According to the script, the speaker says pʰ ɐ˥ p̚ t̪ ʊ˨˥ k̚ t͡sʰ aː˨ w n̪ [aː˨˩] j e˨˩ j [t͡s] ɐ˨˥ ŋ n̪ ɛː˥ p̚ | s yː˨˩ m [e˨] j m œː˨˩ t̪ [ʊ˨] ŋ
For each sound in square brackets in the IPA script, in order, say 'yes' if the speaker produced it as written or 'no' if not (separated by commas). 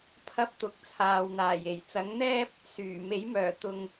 yes, yes, no, yes